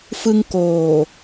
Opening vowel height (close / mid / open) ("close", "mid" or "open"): close